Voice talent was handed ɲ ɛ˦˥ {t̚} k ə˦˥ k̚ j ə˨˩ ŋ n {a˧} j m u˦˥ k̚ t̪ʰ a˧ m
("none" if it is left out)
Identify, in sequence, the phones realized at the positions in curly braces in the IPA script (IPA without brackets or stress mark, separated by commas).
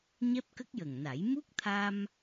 p̚, a˨˩˦